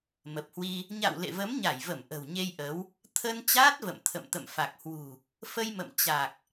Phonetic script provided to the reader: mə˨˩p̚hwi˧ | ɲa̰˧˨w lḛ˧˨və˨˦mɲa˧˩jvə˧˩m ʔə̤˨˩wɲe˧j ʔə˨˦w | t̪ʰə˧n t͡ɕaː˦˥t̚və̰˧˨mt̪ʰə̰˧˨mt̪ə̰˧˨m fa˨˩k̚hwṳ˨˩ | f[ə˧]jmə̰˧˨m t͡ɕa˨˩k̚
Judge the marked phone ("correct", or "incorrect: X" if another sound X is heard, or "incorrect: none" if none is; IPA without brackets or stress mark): correct